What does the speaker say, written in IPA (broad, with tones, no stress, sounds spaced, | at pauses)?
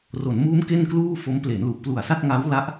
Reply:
r o˩˦ n m uː˦˥ m k e˥˩ n k l uː˥˩ f o˦˥ m p l e˩˦ n l u˨˩ ʔ p l u˨˩ a̯ s a˥˩ t̚ ŋ a˦˥ w l a˦˥ ʔ